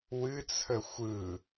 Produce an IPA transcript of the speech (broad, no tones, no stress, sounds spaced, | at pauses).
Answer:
w ɨ t͡sʰ ə xʷ ɯ